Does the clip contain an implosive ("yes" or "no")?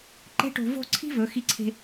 no